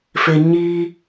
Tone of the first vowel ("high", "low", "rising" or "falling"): low